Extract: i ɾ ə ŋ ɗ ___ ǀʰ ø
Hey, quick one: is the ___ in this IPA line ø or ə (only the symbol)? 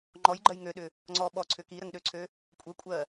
ø